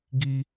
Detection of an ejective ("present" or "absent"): absent